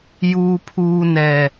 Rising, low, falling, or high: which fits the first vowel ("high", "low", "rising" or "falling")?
low